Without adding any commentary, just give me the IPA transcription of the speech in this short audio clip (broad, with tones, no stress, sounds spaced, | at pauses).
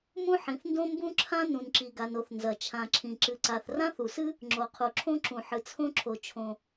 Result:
m ũ˥ ħ ĩ˩ θ n d õ˥ m b ũ˥ ǁʰ ã˥ n ũ˩ n ǁ i˩ ɡ a˩ n o˩ θ n z ɐ˩ t͡ʃʰ ã˩ ǁʰ ĩ˩ ǁ ɨ˩ ǀ a˩ θ r ã˥ θ u˩ s ɨ˥ | ŋ͡ǁ o˩ qʰ u˩ ǁʰ õ˥ ǁ ũ˩ ħ ɨ˩ t͡sʰ õ˥ ǁʰ o˩ t͡ʃʰ õ˩